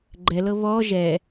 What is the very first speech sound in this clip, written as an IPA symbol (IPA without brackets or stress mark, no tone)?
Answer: ɡ͡ǃ